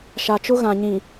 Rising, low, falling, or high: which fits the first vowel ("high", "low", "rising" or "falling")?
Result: low